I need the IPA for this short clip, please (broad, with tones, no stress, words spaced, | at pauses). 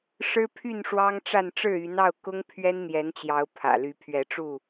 ʂɻ̩˦pʰy˥˨nʂwɑ˦ŋʈ͡ʂa˥˨n ʈ͡ʂɻ̩˥˨y˨˦nɑ˥˨ʊ̯ kʊ˦ŋ pʰɥɛ˦nn̪jɛ˨˦nt͡ɕjɑ˨˦ʊ̯ pʰä̰˨˩ly˨˦ pʰɥɛ˨˦ʈ͡ʂu˥˨